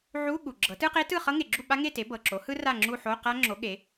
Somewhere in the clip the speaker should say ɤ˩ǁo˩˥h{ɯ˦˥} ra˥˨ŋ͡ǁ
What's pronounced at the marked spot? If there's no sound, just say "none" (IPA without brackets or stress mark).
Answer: ɯ˦˥